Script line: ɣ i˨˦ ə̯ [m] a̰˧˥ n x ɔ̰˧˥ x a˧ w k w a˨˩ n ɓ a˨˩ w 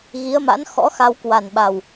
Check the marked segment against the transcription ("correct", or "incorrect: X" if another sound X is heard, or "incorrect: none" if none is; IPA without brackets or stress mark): correct